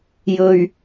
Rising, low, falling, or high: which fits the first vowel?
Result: low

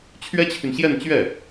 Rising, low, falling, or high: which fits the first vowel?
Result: high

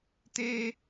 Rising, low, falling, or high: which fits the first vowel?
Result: low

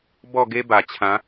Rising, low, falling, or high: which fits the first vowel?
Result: falling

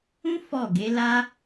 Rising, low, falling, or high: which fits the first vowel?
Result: high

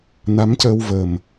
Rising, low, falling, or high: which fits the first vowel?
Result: rising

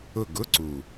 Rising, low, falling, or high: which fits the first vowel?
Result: falling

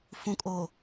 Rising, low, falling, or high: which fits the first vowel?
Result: low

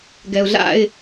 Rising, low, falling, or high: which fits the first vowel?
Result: low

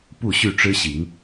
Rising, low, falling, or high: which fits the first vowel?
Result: falling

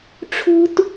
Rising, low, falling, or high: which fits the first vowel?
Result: high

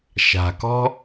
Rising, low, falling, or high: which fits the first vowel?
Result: low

